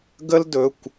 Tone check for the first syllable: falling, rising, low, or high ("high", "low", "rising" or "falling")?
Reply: high